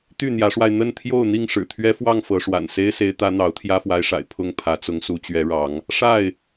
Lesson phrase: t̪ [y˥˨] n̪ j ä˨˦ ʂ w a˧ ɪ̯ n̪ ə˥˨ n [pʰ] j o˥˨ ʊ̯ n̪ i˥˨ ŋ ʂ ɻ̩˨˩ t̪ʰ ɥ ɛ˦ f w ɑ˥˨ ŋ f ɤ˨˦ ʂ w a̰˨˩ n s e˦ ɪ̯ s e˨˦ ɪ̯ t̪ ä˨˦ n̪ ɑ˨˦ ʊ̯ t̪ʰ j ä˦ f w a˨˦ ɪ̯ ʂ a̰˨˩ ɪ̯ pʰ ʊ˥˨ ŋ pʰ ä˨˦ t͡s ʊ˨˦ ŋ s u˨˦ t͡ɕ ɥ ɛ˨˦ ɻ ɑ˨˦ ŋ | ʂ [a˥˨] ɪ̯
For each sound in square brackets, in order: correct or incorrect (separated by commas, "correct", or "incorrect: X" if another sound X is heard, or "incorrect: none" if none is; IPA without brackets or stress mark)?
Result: correct, incorrect: t̪ʰ, correct